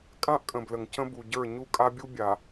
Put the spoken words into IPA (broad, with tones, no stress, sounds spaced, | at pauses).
kʼ ã˦ ʔ kʼ ə̃˨ b l ə˨ ŋ c ə̃˦ b u˨ ɟ ə˞˦˨ ɲ u˦ kʼ a˦ bʲ u˦ bʲ a˨